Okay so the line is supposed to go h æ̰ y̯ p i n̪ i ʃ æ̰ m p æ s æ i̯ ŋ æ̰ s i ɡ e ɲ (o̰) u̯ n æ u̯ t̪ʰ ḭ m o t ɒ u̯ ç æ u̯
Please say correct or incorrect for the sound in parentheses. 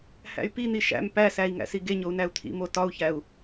incorrect